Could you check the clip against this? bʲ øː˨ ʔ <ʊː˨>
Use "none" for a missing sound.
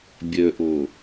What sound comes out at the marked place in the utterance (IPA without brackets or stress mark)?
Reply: ʊː˨